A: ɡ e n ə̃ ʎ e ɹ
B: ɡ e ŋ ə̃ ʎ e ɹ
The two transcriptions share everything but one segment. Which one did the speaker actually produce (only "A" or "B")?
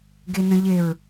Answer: A